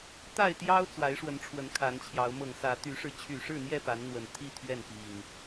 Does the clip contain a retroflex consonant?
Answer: yes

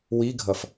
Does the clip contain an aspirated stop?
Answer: no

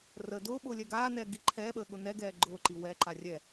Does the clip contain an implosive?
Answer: yes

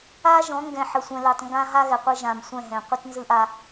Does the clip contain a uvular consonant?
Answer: yes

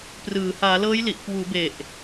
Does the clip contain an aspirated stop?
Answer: no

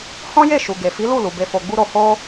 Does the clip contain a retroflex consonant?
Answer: no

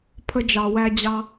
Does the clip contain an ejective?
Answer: no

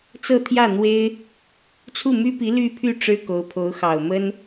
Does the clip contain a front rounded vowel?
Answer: yes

